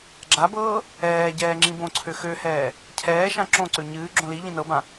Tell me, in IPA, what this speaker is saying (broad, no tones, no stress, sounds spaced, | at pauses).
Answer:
ɡ͡ǁ a b ɤː | ɛː ɟ ɛː ŋ͡ǁ ĩ b õ ǀʰ ø x ø h ɛː | cʰ ɛː ʃ ã ǁ õ ǀ ø ɲ ɨː ɡ͡ǁ õ l i ʎ ĩ n ɤ b ã